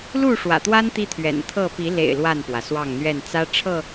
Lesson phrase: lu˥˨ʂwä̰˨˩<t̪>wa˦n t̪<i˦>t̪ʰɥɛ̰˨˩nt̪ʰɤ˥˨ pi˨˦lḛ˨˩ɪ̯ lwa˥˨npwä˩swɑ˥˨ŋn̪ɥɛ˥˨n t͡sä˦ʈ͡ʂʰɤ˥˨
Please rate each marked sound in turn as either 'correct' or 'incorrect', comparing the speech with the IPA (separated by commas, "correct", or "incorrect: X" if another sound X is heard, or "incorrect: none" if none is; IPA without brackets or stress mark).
correct, correct